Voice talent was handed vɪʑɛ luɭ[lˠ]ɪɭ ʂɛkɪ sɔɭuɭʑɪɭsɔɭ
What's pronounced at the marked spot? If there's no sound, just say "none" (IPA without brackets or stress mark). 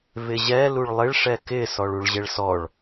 lˠ